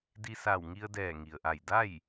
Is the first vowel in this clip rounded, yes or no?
no